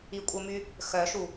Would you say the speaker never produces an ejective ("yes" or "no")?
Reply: no